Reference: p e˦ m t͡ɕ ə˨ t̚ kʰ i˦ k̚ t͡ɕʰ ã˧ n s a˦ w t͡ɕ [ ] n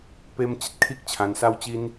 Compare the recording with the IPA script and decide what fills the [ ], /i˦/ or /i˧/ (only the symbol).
i˦